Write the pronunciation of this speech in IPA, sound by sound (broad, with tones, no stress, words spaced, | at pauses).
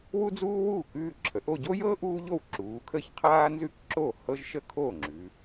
wu˥d͡zuː˥wuː˥˩k ʉː˥˧ǁʰə˩˧ʔo˥˧ ɟo˥jɤː˥ ʔuː˥ʎo˥˩wǁuː˩˧kʰə˥˩ç qʰaː˥nzʉ˥k ǁo˥˩ hɤ˥ʒʃə˥˧ kʰo˥˩ŋ͡ǁʉ˩˧